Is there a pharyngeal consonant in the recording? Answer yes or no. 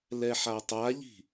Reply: yes